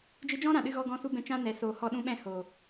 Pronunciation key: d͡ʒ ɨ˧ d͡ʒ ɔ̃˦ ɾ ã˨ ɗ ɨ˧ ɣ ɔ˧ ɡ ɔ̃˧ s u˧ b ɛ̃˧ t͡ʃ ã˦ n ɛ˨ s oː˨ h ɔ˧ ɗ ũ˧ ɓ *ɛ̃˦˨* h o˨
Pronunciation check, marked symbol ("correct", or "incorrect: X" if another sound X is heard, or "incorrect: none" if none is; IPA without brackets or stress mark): correct